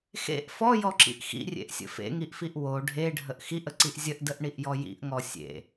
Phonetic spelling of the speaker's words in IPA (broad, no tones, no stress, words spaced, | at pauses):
xḛʔ fɔjɔǁḭʔ xḭrʲḛʔsʲə̰ fḛŋiʔfiʔ wo ɖʱeɖʱəʔ xiʔəǀiʔ zʲəʔdəʔɳiʔjɔ jḭʔŋɔ sʲḛ